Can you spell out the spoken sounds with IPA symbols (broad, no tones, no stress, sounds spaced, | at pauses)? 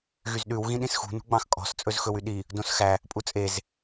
ɣ y z ɗ ʉ w ɣ ĩ ɗ ĩ s x ṳ n ṳ ɡ͡b ɑ̃ x kʼ ɔ̤ s t͡sʼ ɵ z x ɵ w y ɗ i | d õ s x æ | pʼ u t͡sʼ e z